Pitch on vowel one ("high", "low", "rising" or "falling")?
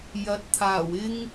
rising